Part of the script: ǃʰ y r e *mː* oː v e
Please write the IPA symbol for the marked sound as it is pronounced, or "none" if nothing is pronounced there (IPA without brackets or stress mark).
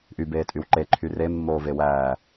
mː